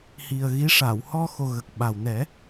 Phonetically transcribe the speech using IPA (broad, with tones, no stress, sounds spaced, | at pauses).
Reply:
h i˨˩ ə̯ ɣ i˧˥ ʂ a˨˩˨ w h ɔ˧ x o˨˩ ɣ ə˨˩ k̚ ɓ a˨˩ w n ɛ˨˩˦